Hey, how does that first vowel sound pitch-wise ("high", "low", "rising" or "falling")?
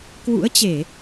rising